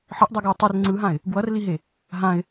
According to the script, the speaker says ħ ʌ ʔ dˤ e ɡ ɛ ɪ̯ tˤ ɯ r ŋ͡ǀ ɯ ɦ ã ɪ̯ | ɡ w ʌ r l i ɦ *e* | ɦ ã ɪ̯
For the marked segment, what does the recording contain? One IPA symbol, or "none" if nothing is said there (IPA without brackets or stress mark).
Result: e